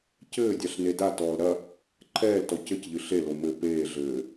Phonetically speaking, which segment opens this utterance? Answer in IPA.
c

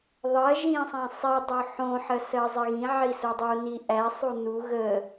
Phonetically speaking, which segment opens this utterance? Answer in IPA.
ðˤ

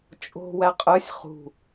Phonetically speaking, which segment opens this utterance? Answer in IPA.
t͡ʃʼ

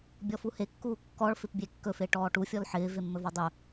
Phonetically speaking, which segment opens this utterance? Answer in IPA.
bʲ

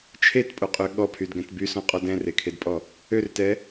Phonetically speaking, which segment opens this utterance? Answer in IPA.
t͡ʃʰ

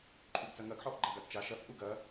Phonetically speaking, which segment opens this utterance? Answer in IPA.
ǃʰ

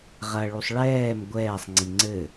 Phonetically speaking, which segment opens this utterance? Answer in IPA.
ʁ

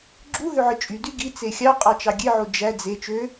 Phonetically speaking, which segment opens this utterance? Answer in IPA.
ɡ͡ǁ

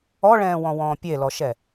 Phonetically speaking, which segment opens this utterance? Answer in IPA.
ɔ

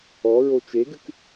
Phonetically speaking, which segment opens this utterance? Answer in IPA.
ɔ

